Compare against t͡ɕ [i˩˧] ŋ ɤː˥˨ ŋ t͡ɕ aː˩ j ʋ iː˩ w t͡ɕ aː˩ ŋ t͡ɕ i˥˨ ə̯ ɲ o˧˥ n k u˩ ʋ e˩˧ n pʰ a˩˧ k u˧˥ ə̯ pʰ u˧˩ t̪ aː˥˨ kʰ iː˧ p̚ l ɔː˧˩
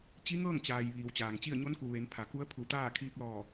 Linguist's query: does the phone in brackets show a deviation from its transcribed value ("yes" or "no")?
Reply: yes